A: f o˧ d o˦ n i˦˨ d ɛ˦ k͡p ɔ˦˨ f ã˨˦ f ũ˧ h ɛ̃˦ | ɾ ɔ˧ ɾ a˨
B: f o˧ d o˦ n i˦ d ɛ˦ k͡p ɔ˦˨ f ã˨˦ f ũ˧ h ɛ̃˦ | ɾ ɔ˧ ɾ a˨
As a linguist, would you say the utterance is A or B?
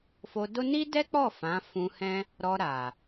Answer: B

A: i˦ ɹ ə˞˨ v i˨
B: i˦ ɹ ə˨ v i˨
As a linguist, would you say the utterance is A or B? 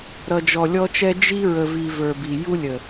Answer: B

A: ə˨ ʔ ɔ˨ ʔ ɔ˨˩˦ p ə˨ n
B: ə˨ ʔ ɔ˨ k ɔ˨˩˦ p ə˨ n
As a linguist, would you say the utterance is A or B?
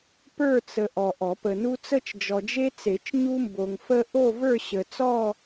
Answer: A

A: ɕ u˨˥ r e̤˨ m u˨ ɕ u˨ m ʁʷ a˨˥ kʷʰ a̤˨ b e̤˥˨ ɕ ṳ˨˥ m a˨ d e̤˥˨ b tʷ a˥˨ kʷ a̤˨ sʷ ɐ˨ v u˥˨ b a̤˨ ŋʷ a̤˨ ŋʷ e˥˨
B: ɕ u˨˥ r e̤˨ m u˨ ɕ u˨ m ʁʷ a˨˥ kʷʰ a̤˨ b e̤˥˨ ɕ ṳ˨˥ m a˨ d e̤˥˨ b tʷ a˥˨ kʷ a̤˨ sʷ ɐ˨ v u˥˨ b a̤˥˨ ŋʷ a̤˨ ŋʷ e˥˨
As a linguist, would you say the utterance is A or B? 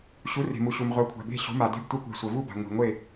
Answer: A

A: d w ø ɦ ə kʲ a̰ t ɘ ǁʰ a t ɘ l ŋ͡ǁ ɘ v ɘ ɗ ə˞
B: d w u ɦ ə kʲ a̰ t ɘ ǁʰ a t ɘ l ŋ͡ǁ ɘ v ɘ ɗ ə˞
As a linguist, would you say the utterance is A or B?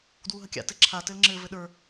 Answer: B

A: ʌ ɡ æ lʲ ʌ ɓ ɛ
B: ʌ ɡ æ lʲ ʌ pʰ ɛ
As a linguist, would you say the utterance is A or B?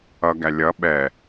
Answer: A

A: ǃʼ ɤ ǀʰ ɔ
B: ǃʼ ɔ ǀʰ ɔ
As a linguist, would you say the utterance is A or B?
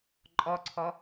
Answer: B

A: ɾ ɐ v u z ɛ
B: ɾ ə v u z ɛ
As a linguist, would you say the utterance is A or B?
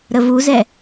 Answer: B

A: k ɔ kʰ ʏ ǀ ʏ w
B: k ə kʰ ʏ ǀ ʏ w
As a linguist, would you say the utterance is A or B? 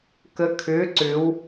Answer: B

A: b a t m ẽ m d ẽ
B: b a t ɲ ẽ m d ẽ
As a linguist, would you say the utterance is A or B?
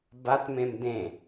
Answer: A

